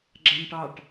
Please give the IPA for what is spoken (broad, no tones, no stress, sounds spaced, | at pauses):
ɡ͡ǁ a n ʈ ɑ ʈ